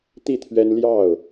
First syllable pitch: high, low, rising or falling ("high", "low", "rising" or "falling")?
falling